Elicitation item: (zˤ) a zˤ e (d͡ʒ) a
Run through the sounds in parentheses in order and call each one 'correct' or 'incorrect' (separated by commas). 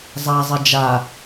correct, correct